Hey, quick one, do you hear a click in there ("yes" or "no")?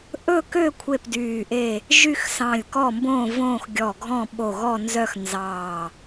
no